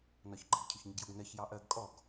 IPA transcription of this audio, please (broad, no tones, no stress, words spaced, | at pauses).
nɒçɡ͡ǃɪɡ cʰʊçɲɪɡjʊɡnɜç jɑʔɜɡ kʼɔɡ